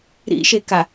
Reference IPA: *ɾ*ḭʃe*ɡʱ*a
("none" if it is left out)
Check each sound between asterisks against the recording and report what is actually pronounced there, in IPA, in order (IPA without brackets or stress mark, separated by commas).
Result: ɾ, k